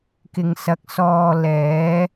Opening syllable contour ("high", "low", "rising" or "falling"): low